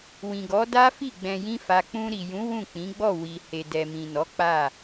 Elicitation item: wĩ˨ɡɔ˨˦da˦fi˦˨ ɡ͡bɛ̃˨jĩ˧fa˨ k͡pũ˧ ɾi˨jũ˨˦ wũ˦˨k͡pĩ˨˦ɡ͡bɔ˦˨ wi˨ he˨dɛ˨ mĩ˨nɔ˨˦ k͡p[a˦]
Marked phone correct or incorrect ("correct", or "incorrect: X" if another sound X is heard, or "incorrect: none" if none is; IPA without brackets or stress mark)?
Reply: incorrect: a˦˨